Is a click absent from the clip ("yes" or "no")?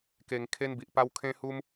yes